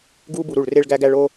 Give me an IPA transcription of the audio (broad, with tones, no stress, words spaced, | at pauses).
ɡuː˦bu˧ɾu˦˨ɭ re˧ɭɡæ˧ɡæ˧ɭ o˦